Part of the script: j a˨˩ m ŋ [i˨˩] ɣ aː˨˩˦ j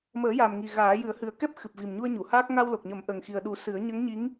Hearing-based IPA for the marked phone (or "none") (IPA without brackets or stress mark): i˨˩